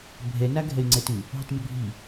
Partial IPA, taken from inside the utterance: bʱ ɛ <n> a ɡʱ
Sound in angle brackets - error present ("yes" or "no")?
no